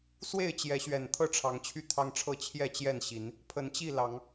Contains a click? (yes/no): no